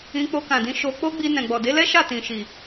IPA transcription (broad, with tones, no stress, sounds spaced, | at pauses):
ĩ˧ k͡p o˧ k ã˨ d ĩ˧ ʃ o˧ k͡p o˦ ɡ͡b i˧ n ɛ̃˨ ɡ͡b ɔ˨ d e˨˦ l ɛ˦ ʃ a˦˨ t ĩ˨ ʃ i˨